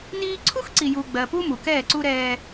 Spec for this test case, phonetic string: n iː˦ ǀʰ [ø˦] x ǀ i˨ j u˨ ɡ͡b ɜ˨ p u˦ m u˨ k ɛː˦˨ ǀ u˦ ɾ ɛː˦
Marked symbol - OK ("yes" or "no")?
no